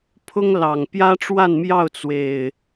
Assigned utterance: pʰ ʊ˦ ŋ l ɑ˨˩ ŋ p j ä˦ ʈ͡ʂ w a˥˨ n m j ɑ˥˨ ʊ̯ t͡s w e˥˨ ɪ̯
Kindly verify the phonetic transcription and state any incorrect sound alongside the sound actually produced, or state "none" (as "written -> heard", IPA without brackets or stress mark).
e˥˨ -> e˨˩